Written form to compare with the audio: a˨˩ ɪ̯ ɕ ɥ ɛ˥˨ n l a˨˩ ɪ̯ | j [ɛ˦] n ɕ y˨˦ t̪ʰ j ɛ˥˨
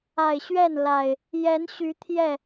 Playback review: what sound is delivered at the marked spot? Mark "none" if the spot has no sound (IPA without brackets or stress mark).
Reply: ɛ˨˦